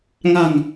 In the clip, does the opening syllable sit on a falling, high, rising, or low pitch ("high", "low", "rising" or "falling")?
low